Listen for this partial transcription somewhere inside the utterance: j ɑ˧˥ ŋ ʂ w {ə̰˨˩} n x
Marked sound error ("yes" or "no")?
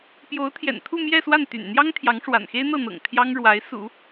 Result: yes